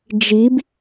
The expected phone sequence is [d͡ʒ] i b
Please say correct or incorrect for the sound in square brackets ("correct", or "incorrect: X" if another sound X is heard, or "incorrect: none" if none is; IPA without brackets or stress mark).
correct